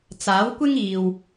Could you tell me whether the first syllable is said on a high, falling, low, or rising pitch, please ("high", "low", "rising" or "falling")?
rising